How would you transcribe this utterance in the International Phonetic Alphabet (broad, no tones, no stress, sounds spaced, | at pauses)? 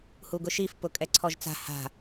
h u ɡ ʊ ʃ i f p ʊ kʼ ɛ ǀʰ ɔ ʒ t͡s a̤ h a̤